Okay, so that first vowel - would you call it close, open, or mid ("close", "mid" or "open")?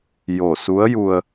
mid